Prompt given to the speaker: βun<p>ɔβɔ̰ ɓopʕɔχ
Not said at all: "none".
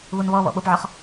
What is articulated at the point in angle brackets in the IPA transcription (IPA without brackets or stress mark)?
β